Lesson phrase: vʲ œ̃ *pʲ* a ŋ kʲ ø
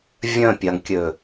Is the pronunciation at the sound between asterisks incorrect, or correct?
correct